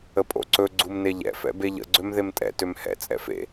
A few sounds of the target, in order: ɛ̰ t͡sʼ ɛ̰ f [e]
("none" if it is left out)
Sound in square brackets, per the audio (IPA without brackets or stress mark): ḛ